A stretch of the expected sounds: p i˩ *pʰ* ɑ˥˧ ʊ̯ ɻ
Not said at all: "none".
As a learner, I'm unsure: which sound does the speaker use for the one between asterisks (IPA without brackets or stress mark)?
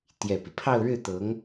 pʰ